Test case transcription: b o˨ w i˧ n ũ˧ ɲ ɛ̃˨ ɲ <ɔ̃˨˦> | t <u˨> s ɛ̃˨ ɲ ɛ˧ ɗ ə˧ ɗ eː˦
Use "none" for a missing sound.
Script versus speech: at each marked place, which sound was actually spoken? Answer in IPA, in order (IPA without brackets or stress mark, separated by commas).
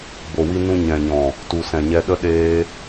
ɔ̃˨, u˨